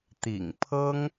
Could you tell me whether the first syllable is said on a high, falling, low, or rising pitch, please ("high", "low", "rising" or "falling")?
low